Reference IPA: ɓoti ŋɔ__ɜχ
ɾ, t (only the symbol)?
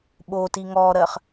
ɾ